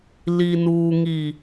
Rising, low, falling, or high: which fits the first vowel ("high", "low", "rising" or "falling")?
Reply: low